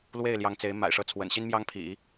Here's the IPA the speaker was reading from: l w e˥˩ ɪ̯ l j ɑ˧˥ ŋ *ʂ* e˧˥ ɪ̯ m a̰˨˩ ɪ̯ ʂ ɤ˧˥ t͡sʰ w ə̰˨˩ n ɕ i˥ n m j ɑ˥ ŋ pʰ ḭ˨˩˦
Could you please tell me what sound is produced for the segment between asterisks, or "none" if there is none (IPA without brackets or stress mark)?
t͡s